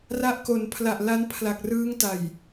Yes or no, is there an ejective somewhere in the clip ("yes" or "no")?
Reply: no